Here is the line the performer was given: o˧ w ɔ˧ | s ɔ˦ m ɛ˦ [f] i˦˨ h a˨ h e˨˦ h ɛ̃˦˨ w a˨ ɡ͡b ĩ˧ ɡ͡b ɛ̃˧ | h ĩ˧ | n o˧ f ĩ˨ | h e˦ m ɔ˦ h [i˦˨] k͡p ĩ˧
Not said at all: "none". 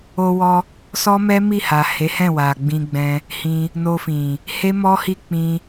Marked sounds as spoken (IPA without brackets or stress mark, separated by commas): m, i˦˨